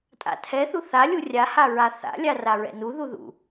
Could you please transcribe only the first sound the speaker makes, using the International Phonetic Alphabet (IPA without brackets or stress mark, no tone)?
tʼ